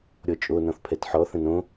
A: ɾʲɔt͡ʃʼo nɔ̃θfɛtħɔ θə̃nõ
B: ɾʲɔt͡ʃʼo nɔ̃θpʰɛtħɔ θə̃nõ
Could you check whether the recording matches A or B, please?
B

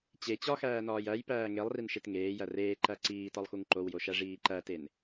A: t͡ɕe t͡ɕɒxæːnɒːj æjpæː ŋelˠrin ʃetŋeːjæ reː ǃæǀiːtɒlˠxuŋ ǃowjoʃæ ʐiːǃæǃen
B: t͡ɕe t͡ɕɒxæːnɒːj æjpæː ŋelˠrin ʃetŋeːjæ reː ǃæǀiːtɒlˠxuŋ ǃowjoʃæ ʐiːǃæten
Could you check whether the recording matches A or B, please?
B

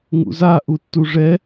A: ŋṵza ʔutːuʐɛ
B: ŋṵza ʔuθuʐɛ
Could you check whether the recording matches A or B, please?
A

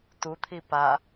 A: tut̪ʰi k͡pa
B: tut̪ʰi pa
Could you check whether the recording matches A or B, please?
B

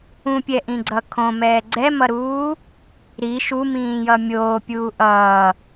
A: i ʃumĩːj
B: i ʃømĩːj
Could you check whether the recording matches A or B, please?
A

